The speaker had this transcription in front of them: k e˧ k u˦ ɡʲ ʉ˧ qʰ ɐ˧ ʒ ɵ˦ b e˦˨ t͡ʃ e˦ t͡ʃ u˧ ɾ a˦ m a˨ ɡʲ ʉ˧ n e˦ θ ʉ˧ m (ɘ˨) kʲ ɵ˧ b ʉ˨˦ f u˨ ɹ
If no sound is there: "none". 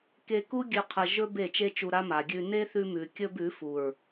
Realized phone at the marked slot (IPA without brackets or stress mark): ʉ˨